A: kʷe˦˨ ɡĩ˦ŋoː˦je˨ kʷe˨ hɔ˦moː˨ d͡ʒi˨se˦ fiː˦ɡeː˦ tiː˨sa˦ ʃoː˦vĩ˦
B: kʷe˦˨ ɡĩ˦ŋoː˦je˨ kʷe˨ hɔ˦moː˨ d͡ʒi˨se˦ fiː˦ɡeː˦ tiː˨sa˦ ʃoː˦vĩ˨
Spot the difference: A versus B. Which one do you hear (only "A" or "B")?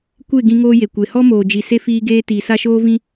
A